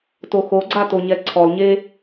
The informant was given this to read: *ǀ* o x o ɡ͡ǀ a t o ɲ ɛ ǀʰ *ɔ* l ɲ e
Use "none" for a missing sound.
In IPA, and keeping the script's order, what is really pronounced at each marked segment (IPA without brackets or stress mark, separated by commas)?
t, ɔ